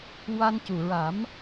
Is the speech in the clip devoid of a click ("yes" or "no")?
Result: yes